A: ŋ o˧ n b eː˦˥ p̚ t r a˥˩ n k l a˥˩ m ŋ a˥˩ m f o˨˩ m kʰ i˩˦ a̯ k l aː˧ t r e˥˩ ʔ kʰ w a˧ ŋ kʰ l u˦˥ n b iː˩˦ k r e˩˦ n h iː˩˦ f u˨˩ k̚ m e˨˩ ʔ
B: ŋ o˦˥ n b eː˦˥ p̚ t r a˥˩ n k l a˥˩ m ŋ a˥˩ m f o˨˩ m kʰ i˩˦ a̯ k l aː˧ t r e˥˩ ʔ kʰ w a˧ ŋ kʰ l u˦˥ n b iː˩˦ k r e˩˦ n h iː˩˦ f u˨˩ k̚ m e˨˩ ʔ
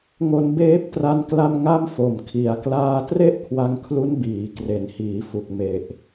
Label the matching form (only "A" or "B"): B